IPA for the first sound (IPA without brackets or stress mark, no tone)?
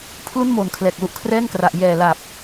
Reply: pʰ